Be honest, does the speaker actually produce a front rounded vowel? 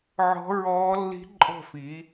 no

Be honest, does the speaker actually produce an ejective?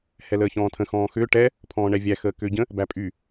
yes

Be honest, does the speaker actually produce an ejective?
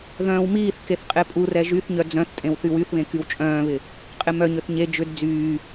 yes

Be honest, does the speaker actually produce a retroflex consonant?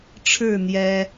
yes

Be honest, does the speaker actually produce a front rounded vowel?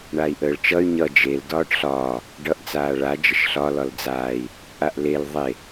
yes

